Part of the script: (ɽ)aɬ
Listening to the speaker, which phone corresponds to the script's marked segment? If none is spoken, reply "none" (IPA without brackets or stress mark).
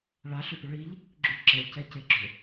ɭ